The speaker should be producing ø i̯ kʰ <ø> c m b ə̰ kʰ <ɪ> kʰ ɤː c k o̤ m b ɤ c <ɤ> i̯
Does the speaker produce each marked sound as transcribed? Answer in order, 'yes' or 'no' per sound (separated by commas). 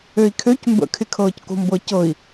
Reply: yes, yes, yes